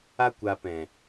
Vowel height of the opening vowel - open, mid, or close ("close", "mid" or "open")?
open